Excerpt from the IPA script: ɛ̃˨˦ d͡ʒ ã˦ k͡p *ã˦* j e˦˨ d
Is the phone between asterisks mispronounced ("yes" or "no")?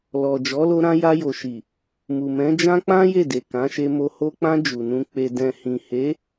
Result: no